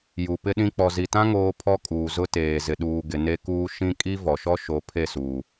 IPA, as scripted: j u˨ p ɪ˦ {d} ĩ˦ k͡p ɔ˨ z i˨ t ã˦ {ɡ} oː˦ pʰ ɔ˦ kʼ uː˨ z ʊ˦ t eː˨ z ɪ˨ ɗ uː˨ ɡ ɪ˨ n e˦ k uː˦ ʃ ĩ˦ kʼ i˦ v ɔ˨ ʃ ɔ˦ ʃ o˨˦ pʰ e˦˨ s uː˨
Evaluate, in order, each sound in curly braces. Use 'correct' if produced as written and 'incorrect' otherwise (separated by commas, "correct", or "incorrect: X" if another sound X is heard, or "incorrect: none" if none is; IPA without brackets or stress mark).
incorrect: ɗ, incorrect: ŋ